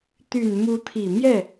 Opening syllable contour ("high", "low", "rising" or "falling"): low